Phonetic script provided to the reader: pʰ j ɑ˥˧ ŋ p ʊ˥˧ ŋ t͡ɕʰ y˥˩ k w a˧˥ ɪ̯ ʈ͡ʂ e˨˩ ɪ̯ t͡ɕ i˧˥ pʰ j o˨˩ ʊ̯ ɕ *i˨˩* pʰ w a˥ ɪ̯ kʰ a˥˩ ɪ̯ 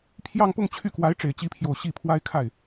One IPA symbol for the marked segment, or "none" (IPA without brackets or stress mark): i˥˩